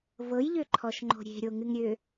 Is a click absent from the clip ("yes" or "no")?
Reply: no